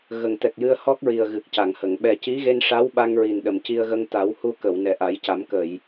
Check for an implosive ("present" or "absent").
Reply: present